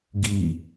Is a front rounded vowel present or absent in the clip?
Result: absent